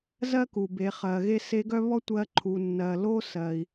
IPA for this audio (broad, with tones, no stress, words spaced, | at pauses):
zɜ˥ku˩be˩˧ χɜ˩ɣe˥ se˧˥ɡœ˥βɔ˥ tʷɜ˧ǃʰu˩ nːɜ˩lo˥ sɜ˩i̯